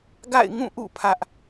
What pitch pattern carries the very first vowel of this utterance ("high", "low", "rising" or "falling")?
falling